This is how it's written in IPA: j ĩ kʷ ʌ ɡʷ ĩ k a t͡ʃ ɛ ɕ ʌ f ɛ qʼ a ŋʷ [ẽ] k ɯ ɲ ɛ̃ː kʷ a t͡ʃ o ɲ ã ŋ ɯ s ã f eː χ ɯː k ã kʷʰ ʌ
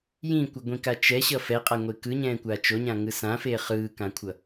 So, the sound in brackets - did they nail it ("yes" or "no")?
no